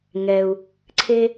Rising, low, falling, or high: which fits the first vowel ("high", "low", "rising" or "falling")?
low